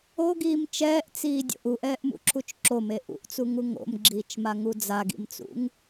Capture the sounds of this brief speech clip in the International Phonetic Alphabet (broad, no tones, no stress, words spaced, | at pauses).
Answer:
oɡiːm t͡ʃɛːʔt͡siːdʲo̰ʔ uʔɛːʔmṵǁʰut͡ʃ ǁome ʔṵʔt͡suŋu ŋo̰mɡ͡ǁiːt͡ʃmaŋu d͡zaɡḭmt͡sṵŋ